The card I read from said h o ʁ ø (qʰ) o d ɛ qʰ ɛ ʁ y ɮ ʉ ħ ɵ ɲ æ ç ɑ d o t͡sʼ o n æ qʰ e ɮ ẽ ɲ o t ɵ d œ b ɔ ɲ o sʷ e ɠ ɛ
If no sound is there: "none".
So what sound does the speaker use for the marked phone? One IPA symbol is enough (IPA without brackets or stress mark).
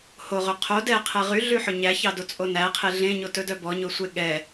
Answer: qʰ